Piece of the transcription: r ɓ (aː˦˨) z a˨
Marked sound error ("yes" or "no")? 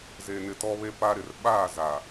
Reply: no